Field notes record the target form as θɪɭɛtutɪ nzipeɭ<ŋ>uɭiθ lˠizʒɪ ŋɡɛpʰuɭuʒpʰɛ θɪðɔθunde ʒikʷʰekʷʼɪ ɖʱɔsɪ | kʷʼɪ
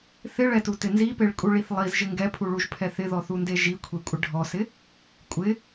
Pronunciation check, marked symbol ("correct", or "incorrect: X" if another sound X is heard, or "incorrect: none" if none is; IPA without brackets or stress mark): incorrect: kʼ